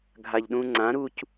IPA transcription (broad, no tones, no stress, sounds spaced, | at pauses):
ɡʱ a ʎ ɗ ũ ŋ͡ǀ ã ɾ u c